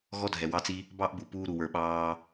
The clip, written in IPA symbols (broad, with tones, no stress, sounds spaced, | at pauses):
ɣ ɔ˦ dʱ ɛ˨ w ɑ˧ t͡s i˧ | b ɑ˦ ʔ b u˨ p uː˧ ɾ u˨ w ə˞˨ ɓ ɑː˧